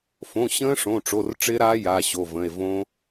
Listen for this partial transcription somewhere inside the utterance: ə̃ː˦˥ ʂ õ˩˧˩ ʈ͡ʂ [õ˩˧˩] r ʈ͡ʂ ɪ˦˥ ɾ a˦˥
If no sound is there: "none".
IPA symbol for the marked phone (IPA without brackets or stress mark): o˩˧˩